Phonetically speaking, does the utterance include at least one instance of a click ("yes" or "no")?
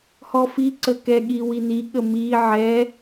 yes